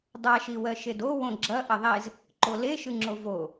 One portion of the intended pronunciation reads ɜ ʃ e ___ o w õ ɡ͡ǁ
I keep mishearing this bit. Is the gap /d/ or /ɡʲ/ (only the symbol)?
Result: d